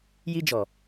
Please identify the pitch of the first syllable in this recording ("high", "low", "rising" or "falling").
high